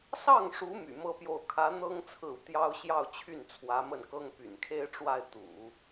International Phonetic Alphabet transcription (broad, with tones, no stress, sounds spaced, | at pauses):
s ɑ˥˩ ŋ ʂ u˧˥ m y̰˨˩ m ɤ˥ p j o˥˩ ʊ̯ kʰ ä˧˥ n̪ ɤ˥ ŋ t͡sʰ ɹ̩˥˩ u˩ t̪ j ɑ˥ ʊ̯ ɕ j ɑ˥˧ ʊ̯ t͡ɕʰ y˥˩ n t͡sʰ w ä˧˥ m ə˥˩ n k ɤ˥ ŋ p y̰˨˩ n kʰ e˥ ɪ̯ ʈ͡ʂ w a˥˩ ɪ̯ t̪ ṵ˨˩˦